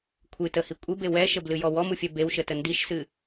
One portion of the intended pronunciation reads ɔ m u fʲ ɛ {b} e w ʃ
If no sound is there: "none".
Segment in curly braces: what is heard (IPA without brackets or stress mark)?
b